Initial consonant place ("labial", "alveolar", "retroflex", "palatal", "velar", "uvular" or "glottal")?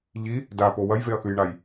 palatal